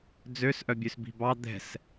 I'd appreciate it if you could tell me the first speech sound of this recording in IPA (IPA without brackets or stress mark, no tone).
d͡z